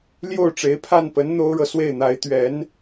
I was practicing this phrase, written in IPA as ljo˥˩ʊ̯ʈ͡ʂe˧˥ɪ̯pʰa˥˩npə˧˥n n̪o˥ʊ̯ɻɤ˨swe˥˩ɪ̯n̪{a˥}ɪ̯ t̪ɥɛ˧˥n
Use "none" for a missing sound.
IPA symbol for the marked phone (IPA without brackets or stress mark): a˧˥